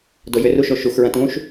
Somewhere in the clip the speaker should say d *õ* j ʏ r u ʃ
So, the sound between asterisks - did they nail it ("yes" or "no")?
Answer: no